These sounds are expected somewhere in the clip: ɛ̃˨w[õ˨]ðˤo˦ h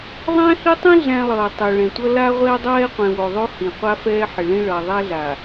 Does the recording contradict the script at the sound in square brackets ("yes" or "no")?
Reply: yes